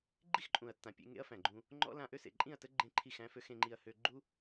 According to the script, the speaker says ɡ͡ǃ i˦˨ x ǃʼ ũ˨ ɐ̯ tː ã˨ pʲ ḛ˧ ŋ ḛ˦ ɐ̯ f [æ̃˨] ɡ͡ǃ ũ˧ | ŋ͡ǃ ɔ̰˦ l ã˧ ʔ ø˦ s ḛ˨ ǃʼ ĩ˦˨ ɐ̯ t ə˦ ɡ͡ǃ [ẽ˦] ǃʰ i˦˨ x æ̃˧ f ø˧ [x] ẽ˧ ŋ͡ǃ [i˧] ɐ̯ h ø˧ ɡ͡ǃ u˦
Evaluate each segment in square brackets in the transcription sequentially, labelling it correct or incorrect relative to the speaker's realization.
correct, correct, correct, correct

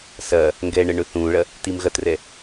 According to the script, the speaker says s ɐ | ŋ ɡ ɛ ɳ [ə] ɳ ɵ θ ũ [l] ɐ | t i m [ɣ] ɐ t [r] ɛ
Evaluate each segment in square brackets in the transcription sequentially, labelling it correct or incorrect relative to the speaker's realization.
correct, incorrect: ɭ, correct, correct

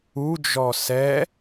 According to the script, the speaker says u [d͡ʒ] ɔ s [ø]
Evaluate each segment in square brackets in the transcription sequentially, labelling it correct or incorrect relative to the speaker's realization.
correct, incorrect: ɛ

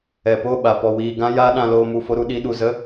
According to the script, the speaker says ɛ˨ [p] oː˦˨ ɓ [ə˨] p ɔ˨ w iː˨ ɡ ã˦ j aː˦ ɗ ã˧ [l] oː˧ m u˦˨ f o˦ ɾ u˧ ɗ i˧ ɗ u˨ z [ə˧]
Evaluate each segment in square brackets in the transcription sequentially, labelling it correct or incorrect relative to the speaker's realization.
correct, incorrect: a˨, correct, incorrect: ə˦

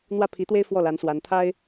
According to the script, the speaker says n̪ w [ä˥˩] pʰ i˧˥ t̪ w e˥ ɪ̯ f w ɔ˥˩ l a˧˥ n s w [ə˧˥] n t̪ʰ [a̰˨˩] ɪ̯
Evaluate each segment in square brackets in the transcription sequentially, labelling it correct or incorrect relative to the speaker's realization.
correct, incorrect: a˧˥, incorrect: a˥

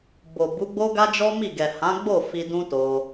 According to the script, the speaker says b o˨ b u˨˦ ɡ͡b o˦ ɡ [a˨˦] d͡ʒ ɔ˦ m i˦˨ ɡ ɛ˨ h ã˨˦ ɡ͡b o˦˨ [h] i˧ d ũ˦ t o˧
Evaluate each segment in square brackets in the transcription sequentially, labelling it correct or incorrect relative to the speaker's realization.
incorrect: a˦, incorrect: f

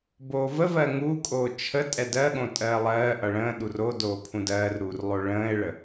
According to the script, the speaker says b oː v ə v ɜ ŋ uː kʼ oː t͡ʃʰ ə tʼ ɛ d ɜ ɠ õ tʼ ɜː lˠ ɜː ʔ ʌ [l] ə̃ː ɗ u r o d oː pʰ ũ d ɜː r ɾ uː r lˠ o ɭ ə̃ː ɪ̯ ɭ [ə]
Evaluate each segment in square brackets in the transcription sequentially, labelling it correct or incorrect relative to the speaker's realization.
incorrect: ɭ, correct

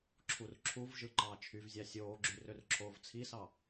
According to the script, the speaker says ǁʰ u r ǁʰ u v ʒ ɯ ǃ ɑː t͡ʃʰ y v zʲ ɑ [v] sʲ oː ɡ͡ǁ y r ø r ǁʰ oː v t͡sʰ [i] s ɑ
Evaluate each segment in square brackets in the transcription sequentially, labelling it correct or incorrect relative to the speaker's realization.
incorrect: none, correct

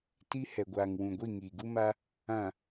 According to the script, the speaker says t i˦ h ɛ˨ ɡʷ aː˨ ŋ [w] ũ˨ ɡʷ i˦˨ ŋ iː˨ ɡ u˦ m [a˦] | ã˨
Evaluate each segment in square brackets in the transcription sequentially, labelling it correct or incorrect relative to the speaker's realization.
correct, correct

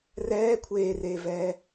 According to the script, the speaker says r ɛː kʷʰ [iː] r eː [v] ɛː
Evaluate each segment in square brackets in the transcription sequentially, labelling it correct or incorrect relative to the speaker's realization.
incorrect: eː, correct

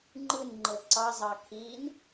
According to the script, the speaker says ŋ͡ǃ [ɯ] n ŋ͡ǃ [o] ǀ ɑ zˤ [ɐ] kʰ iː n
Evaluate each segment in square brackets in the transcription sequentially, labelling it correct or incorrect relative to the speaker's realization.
correct, incorrect: ɤ, incorrect: ɑ

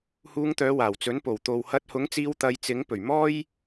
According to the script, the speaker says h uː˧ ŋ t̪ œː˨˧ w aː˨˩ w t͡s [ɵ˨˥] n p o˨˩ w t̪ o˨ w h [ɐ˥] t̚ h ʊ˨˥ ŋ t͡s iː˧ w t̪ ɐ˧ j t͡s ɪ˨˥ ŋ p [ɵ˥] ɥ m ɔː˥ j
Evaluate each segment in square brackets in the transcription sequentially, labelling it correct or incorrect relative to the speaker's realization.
correct, incorrect: ɐ˧, incorrect: ɵ˨˩

